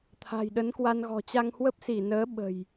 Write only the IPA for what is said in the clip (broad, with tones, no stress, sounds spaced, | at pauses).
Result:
t̪ʰ a̤˨˩ j ɗ ə˨˦ n k w a˧ n ɣ ɔ̤˨˩ t͡ɕ a˧ ŋ h w ə˦˥ p̚ s i˧˩ n əː˨˦ ɓ ə̤˨˩ j